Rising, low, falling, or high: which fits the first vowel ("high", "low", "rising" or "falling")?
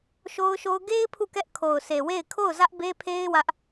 high